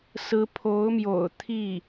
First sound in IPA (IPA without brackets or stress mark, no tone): s